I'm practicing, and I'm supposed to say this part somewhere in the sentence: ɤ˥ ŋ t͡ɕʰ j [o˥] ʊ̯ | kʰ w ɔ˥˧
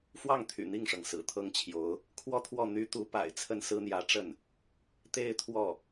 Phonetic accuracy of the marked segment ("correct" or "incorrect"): incorrect